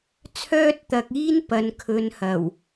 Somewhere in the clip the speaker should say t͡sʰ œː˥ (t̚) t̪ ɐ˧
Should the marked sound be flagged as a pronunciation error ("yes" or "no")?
no